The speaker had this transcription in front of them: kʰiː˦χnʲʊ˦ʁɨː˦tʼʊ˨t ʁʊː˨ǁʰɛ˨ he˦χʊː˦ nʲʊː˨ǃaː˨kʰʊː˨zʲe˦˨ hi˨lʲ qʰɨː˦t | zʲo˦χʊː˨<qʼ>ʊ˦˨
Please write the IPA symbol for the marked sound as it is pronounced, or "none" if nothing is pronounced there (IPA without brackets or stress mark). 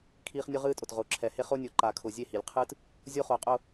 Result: qʼ